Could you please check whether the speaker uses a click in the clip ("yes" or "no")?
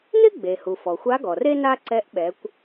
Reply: yes